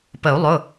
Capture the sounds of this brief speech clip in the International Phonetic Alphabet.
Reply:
p ə˨˩˦ u̯ lˠ ʊ˩˧˩

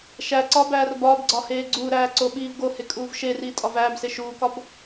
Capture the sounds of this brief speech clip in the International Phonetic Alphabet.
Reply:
ʃ æ ǀ ɒ b æː r b ɒː b ɡ͡ǀ ɒ h eː ɡ͡ǀ uː ɾ æː ǀ o ɓ iː v ɡ o h e kʼ uː v ʃ e r iː tʼ ɒ v æː b s e ʃ uː k ɒ b

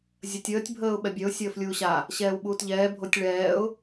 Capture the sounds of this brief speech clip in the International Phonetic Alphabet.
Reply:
zʲ ə tʲ əː tʲ bʱ əː ʊ̯ ɓ ɛ bʲ œ ʊ̯ sʲ əː f lʲ uː ɕ a | ɕ ɛː w ɓ uː t ʎ ɛː bʱ o tʲ ɭ ɛː ʊ̯

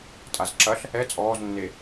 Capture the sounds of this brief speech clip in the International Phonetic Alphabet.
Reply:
tʼ a z ǁ ɐ ɬ | ɛ t͡sʼ ɔː z nː e

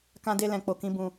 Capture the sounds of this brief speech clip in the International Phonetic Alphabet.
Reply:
k ã˧ d e˧ l ɛ̃˨ k͡p o˨ k ĩ˧ b ũ˧

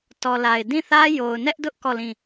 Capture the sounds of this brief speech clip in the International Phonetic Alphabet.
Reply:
t ɔ˨ l a˨ ɪ̯ d ĩ˦˨ θ ä˦ j o˨ ʊ̯ n ɛ˦ ʔ d ʊ˦ ʔ k ɔ˦˨ l ĩ˦˨

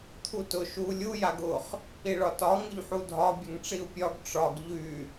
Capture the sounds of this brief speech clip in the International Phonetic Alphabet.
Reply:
t̪ʰ u t ʊ ʃ u lʲ u j a ɡ ʊ χ | i ɭ ɒ t ɒ ŋ ʊ ʎ ħ u dʱ ɒ bʲ ə ŋ ʈ͡ʂ i u̯ pʲ ɒ ɡ ʈ͡ʂ ɒ ɡ ʎ y

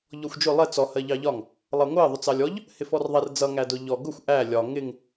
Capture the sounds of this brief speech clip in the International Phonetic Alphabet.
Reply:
ʎ ɔ xʷ d͡ʒ ʊ lˠ ɛ t͡s ɔ h ɜ ʎ ɑ ʎ ɒ ŋ | lˠ ʌ ŋʷ ɜ ðˤ ʊ t͡s ɑ lʲ ɔ ʎ | h ɪ f ɔ r ðˤ ɛ r d͡z ʌ ŋ æ d ʊ ʎ ɔ ɡ ʊ xʷ ʔ æ lʲ ɒ ŋ ɪ ŋ

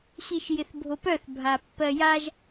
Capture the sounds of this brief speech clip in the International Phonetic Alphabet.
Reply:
x i ʃ j ɪ θ bʱ o p œ θ bʱ a pː ɜ j a ʒ

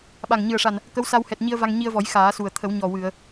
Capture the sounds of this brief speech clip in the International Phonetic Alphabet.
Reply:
ɓ a˨˩ ŋ ɲ ɨ˨˩ ə̯ ʂ a˨˩ n | k ə˧˥ w s a˧ w h ɛ˨˩ t̚ ɲ i˧ ə̯ v a˧ ŋ ɲ i˧ ə̯ v ɔ˨˩˦ j x aː˨˩˦ s u˨˩ ə̯ t̪ʰ ə˨˩˦ w ɲ ɔ˨˩ w ɨ˨˩˨ ə̯

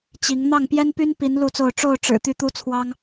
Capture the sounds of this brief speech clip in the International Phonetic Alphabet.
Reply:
t͡ɕ i˨˦ ŋ n̪ ɑ˥˨ ŋ p j ɛ˦ n p y˦ n p i˨˦ n l u˥˨ t͡s o˥˨ ʊ̯ ʈ͡ʂ o˥˨ ʊ̯ ʈ͡ʂ ɻ̩˨˩ t̪ y˥˨ t̪ u˦ t͡sʰ w ɑ˦ ŋ

